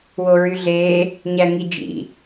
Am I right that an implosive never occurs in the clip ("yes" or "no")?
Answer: yes